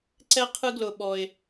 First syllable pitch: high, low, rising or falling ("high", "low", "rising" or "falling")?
high